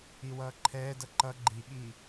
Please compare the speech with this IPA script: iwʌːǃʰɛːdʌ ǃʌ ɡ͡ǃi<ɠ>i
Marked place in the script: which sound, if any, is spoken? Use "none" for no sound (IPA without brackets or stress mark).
ɠ